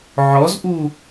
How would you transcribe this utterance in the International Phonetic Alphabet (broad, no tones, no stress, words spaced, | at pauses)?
ʕɔzʔu